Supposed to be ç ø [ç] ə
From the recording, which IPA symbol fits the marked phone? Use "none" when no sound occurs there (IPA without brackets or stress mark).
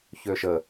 ʃ